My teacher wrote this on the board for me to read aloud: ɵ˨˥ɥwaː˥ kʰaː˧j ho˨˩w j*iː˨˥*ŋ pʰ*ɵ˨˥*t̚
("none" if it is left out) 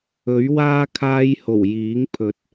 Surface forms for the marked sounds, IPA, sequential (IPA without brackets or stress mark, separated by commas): iː˨˥, ɵ˨˥